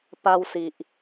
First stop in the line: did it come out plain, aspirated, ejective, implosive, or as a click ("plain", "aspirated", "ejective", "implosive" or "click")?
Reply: plain